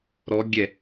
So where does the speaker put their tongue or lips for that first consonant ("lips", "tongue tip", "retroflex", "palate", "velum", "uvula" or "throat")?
tongue tip